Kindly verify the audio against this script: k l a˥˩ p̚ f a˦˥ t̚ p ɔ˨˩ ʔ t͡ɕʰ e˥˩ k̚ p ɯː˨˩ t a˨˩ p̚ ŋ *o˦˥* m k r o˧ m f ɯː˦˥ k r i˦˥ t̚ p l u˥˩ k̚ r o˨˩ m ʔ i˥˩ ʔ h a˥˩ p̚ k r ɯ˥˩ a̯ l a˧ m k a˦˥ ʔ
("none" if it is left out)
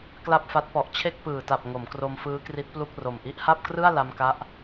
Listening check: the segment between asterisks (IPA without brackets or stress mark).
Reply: o˩˦